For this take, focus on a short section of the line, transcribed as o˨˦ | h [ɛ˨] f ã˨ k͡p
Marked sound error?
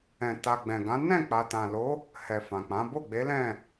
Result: no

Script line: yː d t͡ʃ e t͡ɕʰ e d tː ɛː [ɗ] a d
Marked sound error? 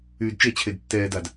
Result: yes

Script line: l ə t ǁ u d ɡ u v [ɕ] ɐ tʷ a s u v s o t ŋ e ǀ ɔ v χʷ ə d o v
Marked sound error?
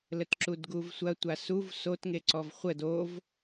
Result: yes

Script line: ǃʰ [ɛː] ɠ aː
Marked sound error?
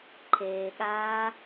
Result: yes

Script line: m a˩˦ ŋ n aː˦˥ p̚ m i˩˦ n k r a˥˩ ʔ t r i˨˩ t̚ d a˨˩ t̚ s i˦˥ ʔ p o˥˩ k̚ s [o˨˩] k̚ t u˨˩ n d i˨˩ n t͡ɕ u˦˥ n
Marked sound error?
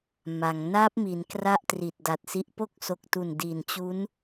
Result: no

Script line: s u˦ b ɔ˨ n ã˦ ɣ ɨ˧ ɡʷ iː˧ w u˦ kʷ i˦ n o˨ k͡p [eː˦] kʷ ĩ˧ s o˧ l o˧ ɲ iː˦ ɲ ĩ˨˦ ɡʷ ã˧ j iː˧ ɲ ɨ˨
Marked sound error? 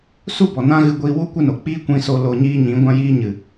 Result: yes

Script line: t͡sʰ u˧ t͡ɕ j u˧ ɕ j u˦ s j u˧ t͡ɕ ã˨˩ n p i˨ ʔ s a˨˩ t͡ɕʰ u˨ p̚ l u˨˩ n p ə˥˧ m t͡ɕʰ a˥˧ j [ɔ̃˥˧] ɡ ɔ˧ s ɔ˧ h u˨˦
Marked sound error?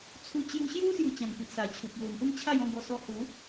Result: no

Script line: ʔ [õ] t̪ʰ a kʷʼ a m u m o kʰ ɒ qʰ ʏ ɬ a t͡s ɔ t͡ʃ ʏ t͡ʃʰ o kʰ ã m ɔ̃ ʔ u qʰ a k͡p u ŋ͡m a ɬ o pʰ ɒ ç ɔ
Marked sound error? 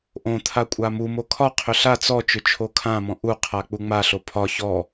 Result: no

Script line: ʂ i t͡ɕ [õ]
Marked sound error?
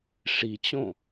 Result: no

